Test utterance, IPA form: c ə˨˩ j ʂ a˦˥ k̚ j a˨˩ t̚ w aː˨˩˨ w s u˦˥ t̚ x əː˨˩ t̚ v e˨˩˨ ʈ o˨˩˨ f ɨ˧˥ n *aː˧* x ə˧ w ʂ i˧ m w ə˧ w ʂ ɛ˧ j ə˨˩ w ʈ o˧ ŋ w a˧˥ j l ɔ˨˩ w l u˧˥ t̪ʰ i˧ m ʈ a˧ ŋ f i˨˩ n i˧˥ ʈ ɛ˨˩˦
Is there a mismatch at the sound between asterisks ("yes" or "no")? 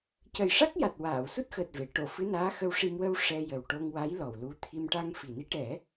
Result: yes